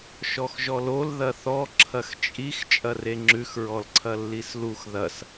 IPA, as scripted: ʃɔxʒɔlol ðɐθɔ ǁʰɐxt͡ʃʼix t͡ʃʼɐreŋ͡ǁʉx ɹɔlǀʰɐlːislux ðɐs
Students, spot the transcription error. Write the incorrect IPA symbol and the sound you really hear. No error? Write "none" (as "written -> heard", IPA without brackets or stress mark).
none